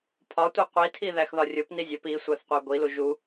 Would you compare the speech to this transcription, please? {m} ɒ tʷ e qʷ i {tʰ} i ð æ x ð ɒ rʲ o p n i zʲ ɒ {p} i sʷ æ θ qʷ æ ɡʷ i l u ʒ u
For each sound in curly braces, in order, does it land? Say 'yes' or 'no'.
no, yes, yes

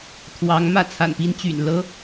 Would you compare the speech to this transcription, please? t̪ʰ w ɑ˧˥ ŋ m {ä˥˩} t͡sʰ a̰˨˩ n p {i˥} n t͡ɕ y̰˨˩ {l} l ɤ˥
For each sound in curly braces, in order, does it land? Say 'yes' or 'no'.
yes, yes, no

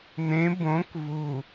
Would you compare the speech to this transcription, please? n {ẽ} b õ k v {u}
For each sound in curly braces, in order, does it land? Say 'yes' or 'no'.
yes, yes

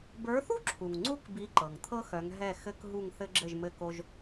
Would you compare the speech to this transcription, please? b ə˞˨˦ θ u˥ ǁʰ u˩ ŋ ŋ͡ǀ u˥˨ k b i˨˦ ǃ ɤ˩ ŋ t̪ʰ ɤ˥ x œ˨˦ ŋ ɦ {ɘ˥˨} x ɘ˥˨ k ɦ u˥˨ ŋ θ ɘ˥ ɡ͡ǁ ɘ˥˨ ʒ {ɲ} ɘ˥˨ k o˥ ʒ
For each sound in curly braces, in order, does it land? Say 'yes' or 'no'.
no, no

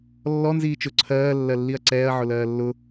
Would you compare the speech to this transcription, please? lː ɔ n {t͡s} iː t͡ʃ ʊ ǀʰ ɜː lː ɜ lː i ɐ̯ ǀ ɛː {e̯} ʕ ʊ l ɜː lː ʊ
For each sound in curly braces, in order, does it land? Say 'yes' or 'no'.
no, no

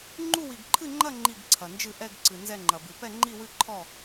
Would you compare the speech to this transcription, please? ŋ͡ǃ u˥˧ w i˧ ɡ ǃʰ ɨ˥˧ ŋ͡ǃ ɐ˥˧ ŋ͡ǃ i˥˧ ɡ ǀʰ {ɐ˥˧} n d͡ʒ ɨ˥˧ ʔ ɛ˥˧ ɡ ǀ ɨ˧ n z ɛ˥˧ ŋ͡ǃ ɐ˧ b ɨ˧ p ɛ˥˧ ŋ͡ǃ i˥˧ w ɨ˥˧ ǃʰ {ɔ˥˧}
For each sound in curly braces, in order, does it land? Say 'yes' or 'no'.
no, yes

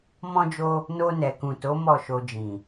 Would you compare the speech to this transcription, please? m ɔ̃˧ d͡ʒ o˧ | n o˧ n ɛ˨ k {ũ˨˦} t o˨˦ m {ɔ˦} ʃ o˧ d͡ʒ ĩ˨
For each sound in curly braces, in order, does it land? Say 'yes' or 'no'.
no, no

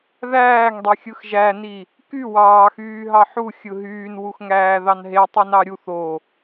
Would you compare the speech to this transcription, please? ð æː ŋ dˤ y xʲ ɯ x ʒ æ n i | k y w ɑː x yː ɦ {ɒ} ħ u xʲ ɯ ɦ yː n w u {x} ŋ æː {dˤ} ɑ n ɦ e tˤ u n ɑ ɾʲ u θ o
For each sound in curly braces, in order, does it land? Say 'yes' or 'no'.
no, yes, no

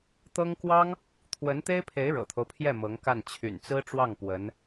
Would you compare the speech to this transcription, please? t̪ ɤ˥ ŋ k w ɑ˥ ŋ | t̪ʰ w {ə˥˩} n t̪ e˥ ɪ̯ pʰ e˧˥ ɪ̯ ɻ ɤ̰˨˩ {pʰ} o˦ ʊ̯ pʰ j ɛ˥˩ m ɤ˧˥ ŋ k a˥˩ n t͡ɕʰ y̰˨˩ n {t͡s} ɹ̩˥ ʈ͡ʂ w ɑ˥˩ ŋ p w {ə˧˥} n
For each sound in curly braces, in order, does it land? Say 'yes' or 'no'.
no, no, yes, yes

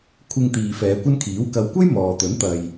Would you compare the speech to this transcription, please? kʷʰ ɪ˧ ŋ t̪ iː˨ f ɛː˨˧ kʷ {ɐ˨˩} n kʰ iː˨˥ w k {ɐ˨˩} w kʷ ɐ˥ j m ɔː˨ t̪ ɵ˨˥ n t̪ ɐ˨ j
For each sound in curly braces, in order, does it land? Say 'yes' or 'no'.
no, no

